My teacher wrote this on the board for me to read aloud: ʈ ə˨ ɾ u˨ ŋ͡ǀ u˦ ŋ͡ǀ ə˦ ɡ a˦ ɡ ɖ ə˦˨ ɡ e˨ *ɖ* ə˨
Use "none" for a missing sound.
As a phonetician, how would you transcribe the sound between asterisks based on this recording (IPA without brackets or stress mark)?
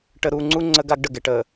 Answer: ʈ